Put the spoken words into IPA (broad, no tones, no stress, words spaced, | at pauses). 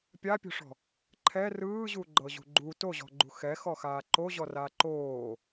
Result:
pʲapʲo̤ʂɔ̤ | ǃʰɛ rɯːʑuɡ͡ǃɤʑṳ ɡ͡ǃu toʑɔ̤ɡ͡ǃṳ xɛxɔxaː ǃoʑɔraː ǃoː